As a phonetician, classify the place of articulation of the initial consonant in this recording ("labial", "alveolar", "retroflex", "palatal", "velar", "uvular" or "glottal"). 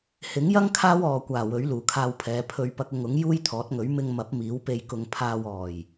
glottal